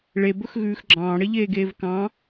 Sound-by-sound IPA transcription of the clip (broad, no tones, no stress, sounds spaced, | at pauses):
ɭ e b ɵ x ɣ ʉː x ɡ͡ǁ ɑ̃ː ɽ e ʎ eː ɡ eː v k ɑ̃